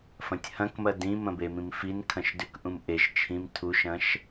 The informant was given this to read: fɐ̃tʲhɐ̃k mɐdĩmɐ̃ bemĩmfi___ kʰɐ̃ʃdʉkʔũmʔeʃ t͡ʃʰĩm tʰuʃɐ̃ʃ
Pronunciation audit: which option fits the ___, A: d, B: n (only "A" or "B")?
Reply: B